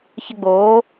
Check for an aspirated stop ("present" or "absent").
absent